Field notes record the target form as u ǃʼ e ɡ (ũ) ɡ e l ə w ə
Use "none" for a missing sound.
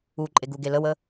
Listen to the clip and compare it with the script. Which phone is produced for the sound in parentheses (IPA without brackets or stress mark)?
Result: u